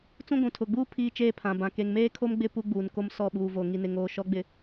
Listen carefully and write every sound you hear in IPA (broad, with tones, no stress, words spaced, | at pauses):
t͡sũ˦ɡʷũ˨tʰʊ˨ɡ͡buː˦ pʰiː˦t͡ʃeː˦pʰã˨bã˨ ke˨ŋmeː˦kʰo˦mɡ͡bɪ˦˨ pu˦ɡ͡buː˨n ko˦msɔ˦˨ɓuː˨vo˨ ŋi˨nɪ˨ŋoː˨ ʃɔ˨˦ɡ͡bɪ˨